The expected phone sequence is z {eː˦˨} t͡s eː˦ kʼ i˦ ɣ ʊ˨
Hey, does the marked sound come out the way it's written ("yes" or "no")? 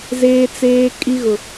no